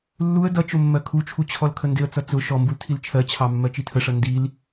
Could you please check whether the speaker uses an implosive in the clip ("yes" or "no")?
no